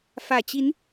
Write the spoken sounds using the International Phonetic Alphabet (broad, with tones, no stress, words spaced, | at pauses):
fä˨˩ t͡ɕi˨˦n